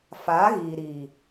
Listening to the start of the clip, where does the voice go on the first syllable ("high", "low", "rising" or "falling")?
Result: rising